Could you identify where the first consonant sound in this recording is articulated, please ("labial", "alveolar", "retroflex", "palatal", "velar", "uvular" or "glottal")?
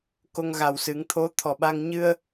velar